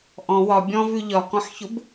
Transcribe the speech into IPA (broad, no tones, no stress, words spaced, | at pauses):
ʔɔ̃ wɒ bʲɔ̃vʉ ʎɒkɔ̃ħçʊb